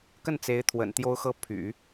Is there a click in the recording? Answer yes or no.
no